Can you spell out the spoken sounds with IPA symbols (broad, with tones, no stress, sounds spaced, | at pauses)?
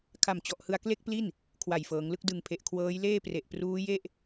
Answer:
kʰ a˨˩ m t͡ɕ ɔ˨˩ ʔ h ɯ˧ a̯ k l e˥˩ k̚ p l i˥˩ n | kʰ w a˨˩ j f ɤː˩˦ ŋ l ɯ˥˩ k̚ d ɯ˨˩ ŋ pʰ e˨˩ ʔ kʰ w ɤː˦˥ j l eː˥˩ p r e˨˩ ʔ p r uː˦˥ j e˥˩ ʔ